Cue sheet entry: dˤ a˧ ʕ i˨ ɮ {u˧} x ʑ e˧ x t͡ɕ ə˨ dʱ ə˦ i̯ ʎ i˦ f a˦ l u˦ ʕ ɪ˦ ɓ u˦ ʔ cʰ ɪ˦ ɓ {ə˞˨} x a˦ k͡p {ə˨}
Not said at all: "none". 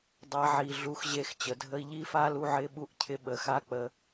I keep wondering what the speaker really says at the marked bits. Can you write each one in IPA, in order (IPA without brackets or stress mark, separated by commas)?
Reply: u˧, ə˨, ə˧